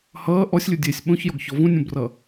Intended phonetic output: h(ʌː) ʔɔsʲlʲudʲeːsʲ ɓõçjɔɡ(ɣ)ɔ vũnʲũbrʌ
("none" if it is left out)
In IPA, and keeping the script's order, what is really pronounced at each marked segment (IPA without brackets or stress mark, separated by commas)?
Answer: ʌː, ç